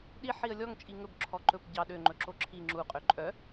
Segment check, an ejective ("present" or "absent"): present